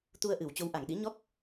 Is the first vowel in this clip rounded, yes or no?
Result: yes